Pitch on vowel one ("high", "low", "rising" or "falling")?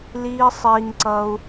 high